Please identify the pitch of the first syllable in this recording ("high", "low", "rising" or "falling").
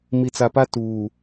low